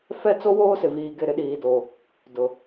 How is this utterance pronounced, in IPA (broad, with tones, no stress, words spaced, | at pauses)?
fɛ˦˨t͡so˦ woː˦sɪ˨viː˨ɡɪ˦˨ ɾɪ˦ɗiː˨do˨ | dʊ˨